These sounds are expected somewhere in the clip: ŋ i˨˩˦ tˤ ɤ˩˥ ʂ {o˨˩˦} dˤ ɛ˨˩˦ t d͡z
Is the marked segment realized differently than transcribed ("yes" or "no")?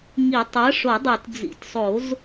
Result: no